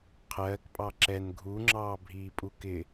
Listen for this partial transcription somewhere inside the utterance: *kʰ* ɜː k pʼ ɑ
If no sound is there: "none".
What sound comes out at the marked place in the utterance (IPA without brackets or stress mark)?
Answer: qʰ